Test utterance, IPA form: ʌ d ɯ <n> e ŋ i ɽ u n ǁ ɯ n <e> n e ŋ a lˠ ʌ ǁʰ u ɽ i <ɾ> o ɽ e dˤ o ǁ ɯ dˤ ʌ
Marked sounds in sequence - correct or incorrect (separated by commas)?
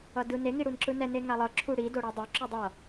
correct, incorrect, incorrect